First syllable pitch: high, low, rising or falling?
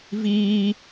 high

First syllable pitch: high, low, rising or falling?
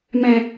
low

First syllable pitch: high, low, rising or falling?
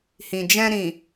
low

